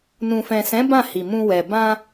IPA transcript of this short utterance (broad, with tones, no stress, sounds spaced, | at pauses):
n ũ˨ f ɛ̃˨ s ɛ̃˨˦ b ã˦˨ h i˨ m ũ˧ w ɛ˨ b ã˧